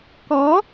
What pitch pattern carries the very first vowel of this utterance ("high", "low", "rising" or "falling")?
rising